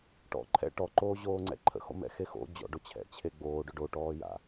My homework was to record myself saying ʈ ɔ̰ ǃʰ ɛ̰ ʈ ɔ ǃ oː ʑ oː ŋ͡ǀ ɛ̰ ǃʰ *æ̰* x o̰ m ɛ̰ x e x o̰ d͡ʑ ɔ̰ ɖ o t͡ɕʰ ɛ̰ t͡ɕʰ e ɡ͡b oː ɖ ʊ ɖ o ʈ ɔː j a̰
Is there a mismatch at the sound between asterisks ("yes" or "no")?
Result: yes